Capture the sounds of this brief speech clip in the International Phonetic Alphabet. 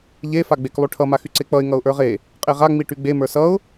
ʎ e f a ɡ͡b e k lˠ y ʈʰ ʌ m a x y ǀ e k͡p ʌ ɪ̯ ŋ ʌ ʊ̯ ʔ ə˞ ʁ e | qʼ e ʁ a ŋ͡m i ʈ y ɡ͡b e m ə˞ s ʌ ʊ̯

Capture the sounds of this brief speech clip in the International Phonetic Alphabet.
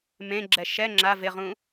m ẽ ɡ͡ǁ ɛ ʃ ɛ ŋ͡ǁ a v ɪ ʁ ũ

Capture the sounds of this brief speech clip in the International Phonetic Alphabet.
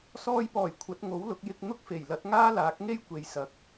s ɔː˧ j p ɔː˨˩ j kʷʰ ɐ˨˥ t̚ ŋ o˨˥ w l ʊ˨˥ k̚ j ɪ˧ k̚ n̪ ʊ˥ k̚ f e˨˩ j l ɐ˨˥ t̚ ŋ aː˥ l aː˨˥ k̚ ŋ e˥ j kʷ e˨ j s ɐ˨˥ k̚

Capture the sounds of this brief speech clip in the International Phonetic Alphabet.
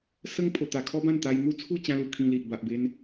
s ə˦ ŋ pʰ o˧ t̪ a˧ kʰ ɔ˦ b ã˥˧ n t̪ a˧ j n̪ u˦ t͡sʰ u˥˧ t͡ɕ ã˦ l u˧ kʰ ĩ˧ l i˨ ʔ b a˨ ʔ b e˧ n

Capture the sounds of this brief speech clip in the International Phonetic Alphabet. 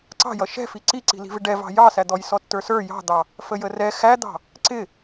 ǀ ɑ̤ j ʌ ʃ ɛ̤ f i ǀ i ǀ i̤ l i̤ v ɪ ɖ ɛ v ɑ̤ j ɑ s æ d̪ ɔ j s ɔ tː ə˞ s ə˞ j ɑ̤ d̪ ɑ | f ə j ə r ɛ x æ d̪ ɑ̤ | ǀ ɪ

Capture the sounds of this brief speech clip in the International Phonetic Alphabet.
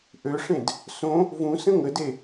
ʔ ø ʂ ẽ d | s õ | v ũ s ə̃ ŋ ə d e

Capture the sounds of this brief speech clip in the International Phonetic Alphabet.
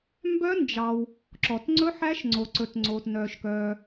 m b œ˦˥ n d͡ʒ ɑ˨ w | ǁ ɔ˨ t ŋ͡ǀ ɵ˦˥ ħ æ˦˥ ʃ ŋ͡ǀ o˨ ǀ ɵ˨ t ŋ͡ǀ oː˨ t n œː˨ ʃ k œː˨

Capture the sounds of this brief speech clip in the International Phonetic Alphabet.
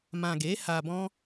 m ã˨ ɡ e˨˦ h a˧ b ɔ̃˦

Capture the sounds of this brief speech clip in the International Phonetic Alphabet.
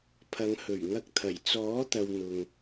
pʰ ɐ˨˧ ŋ h ɵ˨˩ ɥ ŋ ɐ˧ k̚ t̪ʰ ɐ˨˩ j t͡s ɔː˨˥ t̪ ɐ˨ w n̪ ʊ˨ ŋ

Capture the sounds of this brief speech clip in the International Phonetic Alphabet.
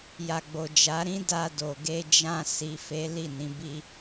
j a˨ ɡ͡b o˨ d͡ʒ a˨˦ ɾ ĩ˦ d a˧ d o˨ ɡ e˧ d͡ʒ ã˧ s i˨ f e˨˦ l i˦˨ n ĩ˨˦ b i˦

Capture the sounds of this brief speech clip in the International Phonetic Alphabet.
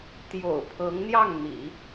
t̪ j o̰˨˩ ʊ̯ pʰ ɤ˧˥ ŋ n̪ j ɑ˥˩ ŋ n̪ ḭ˨˩˦

